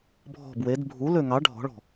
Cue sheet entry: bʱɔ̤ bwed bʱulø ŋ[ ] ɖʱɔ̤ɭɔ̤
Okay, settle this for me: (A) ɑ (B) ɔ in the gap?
A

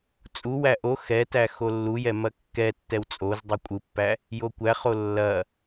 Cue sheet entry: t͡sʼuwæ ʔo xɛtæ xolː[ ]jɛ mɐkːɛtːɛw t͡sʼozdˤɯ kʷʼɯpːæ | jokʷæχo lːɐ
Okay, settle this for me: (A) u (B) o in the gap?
A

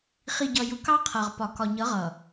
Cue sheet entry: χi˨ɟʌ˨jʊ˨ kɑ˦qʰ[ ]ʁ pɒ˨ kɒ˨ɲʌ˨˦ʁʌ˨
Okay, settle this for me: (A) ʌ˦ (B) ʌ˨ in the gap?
B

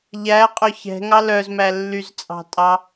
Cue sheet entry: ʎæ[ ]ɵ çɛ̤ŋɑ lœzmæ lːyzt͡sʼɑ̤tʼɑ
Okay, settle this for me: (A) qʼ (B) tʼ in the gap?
A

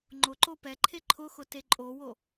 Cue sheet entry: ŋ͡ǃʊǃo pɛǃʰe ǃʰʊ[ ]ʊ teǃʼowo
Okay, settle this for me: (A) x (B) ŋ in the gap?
A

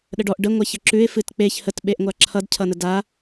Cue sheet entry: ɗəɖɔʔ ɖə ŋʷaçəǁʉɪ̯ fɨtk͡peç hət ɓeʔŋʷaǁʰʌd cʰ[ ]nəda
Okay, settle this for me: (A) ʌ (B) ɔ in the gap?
A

